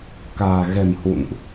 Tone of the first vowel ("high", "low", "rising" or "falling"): low